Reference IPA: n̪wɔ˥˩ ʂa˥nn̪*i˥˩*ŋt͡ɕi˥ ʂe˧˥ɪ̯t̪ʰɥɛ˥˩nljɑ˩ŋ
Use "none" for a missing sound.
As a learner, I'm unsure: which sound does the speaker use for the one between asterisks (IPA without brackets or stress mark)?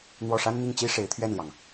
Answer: i˥˩